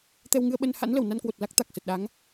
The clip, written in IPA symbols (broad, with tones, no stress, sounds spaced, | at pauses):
t̪ ɛ˧ w ŋ ɨ˧ ə̯ ɓ ə˧ n h a̰˧˥ n l ə˧˩ w n a˧ n k w o˨˩ t̚ l a˦˥ k̚ t̪ a˨˩ k̚ s ə˨˩ t̚ ɗ a˨˦ ŋ